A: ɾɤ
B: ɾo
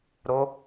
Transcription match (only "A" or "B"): B